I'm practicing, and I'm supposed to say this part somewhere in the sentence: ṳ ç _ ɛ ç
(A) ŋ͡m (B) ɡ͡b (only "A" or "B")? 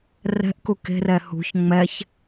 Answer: A